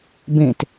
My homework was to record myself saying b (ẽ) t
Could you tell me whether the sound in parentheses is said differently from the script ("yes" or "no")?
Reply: no